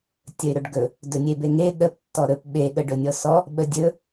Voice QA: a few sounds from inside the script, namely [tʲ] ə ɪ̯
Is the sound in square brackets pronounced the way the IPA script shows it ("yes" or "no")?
yes